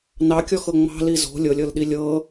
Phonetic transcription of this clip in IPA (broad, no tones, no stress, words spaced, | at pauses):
nɑkʲɔxɤ ŋ͡mɑ̤li zo̤ lʲɤlʲɤlɗi lʲɤ